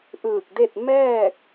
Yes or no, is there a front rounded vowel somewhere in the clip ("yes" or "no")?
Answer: no